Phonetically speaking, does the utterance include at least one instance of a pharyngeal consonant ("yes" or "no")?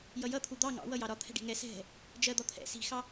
no